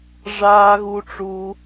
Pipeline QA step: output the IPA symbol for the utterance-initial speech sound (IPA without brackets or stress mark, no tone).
ʐ